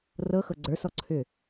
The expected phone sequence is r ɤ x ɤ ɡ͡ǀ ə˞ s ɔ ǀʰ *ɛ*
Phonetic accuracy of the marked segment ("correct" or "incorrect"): incorrect